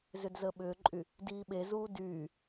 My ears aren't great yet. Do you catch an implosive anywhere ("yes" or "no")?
yes